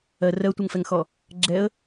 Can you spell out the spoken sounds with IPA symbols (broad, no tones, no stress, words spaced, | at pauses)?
ɜ rɜtʷʌŋfɛŋxɔ | ɡ͡ǁɛə̯